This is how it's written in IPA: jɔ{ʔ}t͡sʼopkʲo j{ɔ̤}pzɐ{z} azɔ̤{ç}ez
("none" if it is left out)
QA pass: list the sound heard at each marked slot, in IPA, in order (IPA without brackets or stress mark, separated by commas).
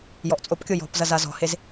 ʔ, ɔ̤, z, h